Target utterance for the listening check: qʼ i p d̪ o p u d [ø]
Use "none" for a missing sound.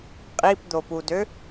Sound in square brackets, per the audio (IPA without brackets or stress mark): ø